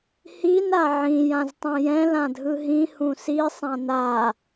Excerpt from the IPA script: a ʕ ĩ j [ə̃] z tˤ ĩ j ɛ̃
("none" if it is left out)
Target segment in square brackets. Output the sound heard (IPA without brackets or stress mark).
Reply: ã